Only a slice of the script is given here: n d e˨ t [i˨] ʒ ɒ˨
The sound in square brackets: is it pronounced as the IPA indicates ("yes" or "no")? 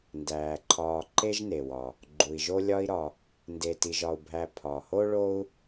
yes